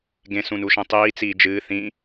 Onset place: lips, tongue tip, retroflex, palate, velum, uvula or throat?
velum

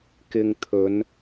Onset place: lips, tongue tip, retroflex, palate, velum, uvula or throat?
velum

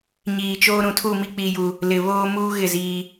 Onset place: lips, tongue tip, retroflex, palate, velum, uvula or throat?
palate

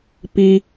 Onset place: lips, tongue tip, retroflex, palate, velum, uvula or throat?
lips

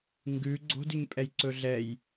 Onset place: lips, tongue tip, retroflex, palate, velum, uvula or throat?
velum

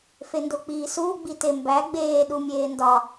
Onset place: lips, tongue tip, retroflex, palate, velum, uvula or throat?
lips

